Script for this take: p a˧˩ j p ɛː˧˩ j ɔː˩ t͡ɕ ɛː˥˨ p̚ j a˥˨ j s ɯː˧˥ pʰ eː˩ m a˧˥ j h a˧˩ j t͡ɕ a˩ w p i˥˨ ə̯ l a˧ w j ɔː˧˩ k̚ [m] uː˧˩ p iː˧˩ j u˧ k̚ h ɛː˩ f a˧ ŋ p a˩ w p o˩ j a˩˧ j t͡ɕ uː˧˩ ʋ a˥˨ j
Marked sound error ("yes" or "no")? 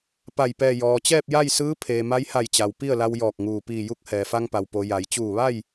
yes